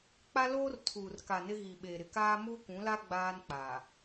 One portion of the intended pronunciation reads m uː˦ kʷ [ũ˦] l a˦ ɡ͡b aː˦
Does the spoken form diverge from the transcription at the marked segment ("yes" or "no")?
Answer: yes